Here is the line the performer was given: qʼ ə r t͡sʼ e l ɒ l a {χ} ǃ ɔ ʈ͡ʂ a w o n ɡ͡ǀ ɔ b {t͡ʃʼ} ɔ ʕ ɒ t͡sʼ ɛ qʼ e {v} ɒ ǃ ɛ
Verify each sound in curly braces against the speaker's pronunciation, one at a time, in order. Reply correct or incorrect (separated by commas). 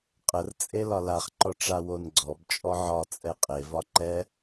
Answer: correct, correct, correct